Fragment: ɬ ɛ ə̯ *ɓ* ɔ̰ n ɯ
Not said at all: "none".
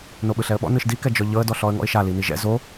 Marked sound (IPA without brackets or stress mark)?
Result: ɓ